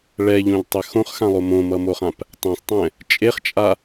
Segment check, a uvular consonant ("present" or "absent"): present